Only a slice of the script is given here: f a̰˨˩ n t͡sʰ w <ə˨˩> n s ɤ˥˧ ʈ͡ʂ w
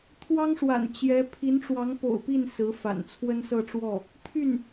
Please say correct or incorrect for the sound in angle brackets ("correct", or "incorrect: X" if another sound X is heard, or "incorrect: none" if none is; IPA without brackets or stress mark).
incorrect: ə˥